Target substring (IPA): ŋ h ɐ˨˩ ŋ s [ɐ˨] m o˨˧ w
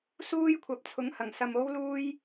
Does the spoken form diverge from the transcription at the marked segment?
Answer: no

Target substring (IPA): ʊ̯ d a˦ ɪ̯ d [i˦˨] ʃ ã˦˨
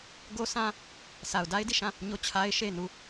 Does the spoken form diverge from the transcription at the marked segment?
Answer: no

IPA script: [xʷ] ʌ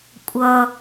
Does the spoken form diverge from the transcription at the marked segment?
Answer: yes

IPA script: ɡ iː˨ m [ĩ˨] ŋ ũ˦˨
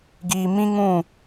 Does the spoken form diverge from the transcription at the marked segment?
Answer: yes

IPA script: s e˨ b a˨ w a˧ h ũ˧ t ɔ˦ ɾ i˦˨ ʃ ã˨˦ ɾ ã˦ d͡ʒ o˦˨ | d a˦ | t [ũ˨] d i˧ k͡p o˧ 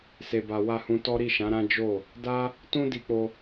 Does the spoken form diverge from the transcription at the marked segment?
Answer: yes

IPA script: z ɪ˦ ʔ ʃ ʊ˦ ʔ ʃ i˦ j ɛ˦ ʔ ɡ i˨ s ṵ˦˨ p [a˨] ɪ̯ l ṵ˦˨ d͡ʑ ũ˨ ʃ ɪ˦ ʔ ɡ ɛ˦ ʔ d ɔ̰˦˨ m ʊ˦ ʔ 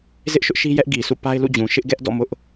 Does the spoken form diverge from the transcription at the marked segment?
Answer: yes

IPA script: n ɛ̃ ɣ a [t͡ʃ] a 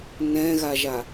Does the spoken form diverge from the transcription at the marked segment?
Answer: yes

